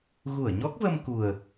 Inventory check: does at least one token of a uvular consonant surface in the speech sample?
no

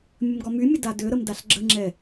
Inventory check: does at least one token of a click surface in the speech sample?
yes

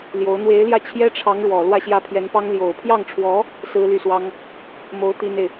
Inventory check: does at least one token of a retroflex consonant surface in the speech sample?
yes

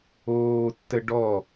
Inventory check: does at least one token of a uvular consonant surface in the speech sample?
no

